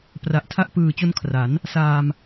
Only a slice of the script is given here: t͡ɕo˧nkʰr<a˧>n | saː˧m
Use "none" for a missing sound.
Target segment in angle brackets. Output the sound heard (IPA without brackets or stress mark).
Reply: a˩˦